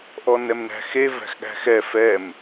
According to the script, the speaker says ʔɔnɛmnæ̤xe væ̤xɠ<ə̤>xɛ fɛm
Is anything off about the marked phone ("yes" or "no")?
yes